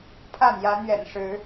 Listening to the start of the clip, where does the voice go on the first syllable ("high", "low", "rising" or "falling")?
falling